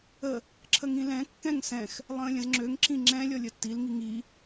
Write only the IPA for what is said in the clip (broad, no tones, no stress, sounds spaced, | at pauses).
ə | ǁʰ ə ŋ ĩ l ɛ̃ kː ɛ̃ ŋ s ɛ̃ x | lˠ ə̃ː lʲ ə̃ z ŋ͡ǁ ø ŋ ǁ ĩ ŋ͡ǁ ɛ̃ lʲ ɔ lʲ ə tː i l ŋ i ŋ i